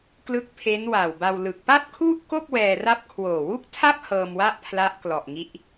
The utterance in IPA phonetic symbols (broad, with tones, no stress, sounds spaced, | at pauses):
k l ɯ˦˥ k̚ pʰ e˦˥ n w a˨˩ w b a˧ w l ɯ˨˩ k̚ p a˥˩ t̚ kʰ u˥˩ ʔ k o˥˩ k̚ w ɛː˧ r a˥˩ p̚ kʰ w oː˨˩ w u˥˩ k̚ tʰ a˥˩ p̚ h ɤː˧ m w a˥˩ ʔ pʰ l a˦˥ ʔ k l ɔ˨˩ ʔ ŋ i˦˥ ʔ